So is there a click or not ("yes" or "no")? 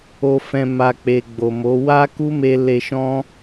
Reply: no